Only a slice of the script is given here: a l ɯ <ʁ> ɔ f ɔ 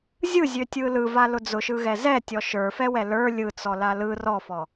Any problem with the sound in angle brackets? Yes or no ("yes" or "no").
yes